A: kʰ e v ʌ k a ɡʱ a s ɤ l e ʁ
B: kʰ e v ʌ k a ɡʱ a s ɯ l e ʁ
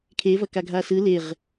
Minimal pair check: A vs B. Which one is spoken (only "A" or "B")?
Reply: B